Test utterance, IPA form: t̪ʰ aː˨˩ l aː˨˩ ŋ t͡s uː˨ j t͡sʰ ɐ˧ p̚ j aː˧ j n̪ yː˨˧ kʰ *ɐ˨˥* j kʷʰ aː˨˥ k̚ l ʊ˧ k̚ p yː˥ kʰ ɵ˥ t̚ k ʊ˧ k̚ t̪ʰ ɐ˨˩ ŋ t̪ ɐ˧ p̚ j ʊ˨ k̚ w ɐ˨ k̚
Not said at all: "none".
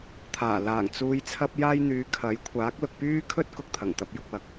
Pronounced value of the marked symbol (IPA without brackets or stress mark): ɐ˨˥